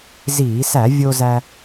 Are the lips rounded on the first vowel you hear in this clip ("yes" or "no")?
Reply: no